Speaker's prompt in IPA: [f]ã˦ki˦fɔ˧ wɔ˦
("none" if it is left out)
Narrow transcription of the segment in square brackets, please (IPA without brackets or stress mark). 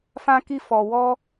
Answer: f